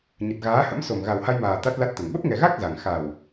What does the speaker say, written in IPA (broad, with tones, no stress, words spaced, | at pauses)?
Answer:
ɲə˨˩t̚ɣaː˨˦hə̰˧˥m so˨˩m ɣa˨˩wha˧jmaː˨˩ t̪a˦˥t̚la˦˥t̚t̪ə˨˩n ɓə˦˥p̚ŋɛ˨˩ɣa˦˥k̚ za˨˩ŋ xa˨˩w